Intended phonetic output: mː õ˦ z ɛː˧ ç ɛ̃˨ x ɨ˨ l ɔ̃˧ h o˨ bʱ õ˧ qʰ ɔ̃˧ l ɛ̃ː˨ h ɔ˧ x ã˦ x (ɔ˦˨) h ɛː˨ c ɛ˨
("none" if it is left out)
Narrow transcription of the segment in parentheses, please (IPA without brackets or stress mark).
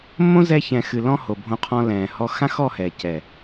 ɔ˦˨